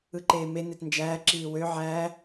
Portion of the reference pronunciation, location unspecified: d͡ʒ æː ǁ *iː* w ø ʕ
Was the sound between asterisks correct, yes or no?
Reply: yes